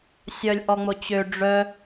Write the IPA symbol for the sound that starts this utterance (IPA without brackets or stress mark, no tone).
sʲ